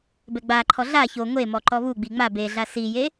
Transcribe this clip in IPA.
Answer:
bɛɡ͡baǃʰɔ ɮa ço ŋʷe mɔǃɔβuɡ͡bi ŋ͡ma beɮa sije

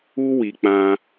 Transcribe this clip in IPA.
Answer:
u˧wi˨k͡pã˧

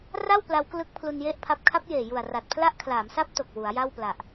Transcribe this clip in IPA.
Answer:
ra˥˩w pla˦˥wklɯ˦˥k̚ pʰlu˧nje˥˩ʔpʰa˦˥p̚ kʰa˦˥p̚jeː˨˩ju˨˩a̯ ra˨˩t̚pʰla˦˥ʔkʰlaː˩˦msa˦˥p̚ to˨˩k̚wu˩˦a̯ja˥˩wpla˨˩ʔ

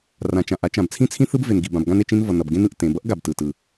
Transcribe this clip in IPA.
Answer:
rã˩t͡ʃã˩ʔa˥t͡ʃã˩b t͡sʰĩ˥t͡sʰĩ˥ θɯ˥bve˩nɡi˩ bã˩bɡã˥ne˩t͡ʃĩ˥n vʌ˩nʌ˩bɡẽ˥n ɯ˩ʔtẽ˩bʌ˥ʔ ɡa˩btɯ˩ tɯ˩

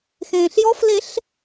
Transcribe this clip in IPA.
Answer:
xẽːɬjɔfleɬ

